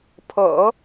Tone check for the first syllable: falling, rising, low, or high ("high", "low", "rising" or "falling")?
low